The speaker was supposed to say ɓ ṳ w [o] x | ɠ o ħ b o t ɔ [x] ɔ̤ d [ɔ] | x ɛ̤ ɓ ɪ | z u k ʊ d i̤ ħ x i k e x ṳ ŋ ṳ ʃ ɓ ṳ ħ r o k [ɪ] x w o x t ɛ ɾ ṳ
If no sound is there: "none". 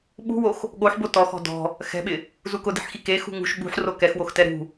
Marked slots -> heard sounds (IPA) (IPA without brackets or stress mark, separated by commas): o, x, ɔ̤, ɛ